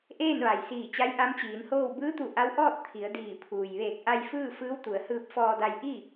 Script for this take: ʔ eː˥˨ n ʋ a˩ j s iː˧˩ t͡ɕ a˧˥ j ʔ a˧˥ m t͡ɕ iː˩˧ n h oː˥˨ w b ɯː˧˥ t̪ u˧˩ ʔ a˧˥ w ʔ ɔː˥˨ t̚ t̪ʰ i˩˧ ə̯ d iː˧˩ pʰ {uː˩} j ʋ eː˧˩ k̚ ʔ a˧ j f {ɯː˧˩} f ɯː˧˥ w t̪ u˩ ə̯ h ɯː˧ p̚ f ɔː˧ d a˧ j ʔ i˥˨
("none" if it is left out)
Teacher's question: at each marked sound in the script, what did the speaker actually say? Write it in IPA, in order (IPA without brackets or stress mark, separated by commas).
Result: uː˩, ɯː˥˨